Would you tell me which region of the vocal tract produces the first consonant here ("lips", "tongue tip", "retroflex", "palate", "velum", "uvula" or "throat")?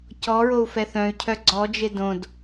palate